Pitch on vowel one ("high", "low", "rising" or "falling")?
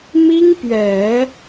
high